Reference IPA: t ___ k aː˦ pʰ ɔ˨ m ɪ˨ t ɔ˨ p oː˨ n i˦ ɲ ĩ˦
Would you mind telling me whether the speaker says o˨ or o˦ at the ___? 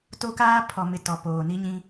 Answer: o˦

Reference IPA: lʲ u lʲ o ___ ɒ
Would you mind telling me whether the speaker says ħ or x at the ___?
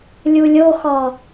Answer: x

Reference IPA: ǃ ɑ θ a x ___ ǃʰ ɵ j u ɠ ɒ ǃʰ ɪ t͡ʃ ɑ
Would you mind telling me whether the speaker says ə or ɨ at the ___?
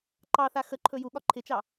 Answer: ə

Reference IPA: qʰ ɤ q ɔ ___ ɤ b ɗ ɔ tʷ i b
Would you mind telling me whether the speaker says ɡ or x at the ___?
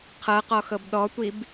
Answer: x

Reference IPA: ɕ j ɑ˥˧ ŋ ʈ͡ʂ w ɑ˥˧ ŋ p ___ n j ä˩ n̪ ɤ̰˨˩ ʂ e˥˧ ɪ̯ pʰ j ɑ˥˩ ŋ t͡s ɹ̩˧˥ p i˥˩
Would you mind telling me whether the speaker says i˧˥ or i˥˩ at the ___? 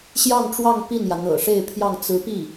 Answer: i˥˩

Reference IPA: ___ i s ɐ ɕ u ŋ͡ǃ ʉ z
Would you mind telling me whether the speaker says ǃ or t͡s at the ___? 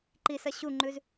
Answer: ǃ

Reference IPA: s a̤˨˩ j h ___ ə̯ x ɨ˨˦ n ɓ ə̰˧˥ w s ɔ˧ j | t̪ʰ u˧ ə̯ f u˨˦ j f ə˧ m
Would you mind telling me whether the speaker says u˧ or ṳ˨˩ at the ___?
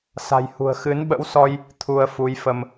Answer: ṳ˨˩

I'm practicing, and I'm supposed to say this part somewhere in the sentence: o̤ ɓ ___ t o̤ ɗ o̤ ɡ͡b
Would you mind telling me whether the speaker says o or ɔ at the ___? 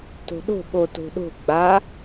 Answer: o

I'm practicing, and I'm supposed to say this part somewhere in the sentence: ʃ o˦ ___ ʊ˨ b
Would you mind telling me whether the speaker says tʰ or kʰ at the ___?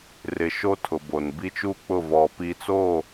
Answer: tʰ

